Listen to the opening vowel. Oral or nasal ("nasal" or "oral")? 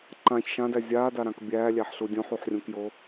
nasal